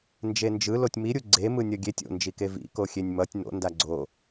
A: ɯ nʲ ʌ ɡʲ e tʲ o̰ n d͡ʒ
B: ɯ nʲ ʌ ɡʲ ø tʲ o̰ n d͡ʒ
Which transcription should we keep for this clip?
A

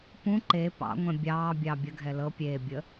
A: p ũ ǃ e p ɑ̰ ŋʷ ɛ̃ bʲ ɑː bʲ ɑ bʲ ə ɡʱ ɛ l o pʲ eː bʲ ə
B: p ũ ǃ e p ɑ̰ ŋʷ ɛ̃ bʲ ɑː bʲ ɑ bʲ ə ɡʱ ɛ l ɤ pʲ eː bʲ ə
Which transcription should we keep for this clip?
B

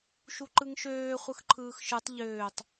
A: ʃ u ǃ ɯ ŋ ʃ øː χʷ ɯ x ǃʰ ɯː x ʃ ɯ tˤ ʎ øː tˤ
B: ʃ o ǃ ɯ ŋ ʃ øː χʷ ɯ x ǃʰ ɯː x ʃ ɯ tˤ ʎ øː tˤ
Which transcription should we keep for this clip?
A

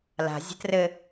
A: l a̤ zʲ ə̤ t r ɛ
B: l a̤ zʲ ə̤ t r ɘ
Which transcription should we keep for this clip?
B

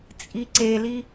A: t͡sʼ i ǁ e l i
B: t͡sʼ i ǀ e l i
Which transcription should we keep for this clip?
B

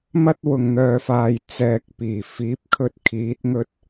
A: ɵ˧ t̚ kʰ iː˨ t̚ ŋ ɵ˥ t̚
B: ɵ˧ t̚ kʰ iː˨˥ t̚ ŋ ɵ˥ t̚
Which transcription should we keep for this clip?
B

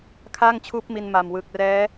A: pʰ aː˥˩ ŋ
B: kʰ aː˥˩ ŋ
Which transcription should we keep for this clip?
B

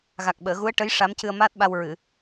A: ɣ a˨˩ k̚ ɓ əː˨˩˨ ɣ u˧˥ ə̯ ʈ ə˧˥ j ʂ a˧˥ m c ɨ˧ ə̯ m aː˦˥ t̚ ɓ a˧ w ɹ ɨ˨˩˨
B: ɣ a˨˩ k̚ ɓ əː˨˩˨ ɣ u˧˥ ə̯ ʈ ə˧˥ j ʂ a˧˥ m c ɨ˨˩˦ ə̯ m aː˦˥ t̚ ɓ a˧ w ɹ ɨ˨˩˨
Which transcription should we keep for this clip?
A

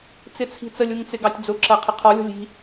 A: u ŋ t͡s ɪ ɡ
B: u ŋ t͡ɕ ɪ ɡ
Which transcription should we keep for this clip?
A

